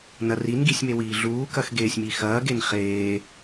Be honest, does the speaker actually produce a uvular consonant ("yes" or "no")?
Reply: yes